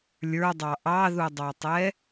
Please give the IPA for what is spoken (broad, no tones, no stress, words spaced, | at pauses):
lʲə˞dˤɑ ʔɑðudˤɑtˤɛ